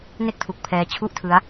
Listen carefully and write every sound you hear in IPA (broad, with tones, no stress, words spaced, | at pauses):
ne˥˩k̚tʰu˨˩k̚ pʰɛː˧t͡ɕʰu˥˩ʔtʰɯ˦˥a̯